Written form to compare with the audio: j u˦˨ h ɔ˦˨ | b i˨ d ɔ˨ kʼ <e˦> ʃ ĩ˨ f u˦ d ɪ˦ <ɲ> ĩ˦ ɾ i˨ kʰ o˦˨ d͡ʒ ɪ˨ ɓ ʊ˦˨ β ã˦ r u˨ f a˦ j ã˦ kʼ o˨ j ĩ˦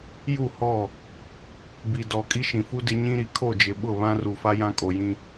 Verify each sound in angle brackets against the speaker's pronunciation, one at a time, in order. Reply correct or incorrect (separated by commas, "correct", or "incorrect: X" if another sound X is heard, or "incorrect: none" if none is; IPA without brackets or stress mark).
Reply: incorrect: i˦, correct